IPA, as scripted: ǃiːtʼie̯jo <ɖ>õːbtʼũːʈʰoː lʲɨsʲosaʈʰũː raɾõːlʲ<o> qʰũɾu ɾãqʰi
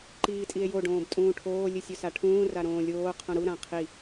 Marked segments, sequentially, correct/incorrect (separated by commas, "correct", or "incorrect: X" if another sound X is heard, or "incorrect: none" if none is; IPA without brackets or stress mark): correct, incorrect: oː